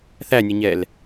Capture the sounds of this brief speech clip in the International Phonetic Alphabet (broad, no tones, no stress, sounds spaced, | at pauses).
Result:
θ æ nʲ ə ɲ ɛ l